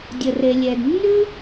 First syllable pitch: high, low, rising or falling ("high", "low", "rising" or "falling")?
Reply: low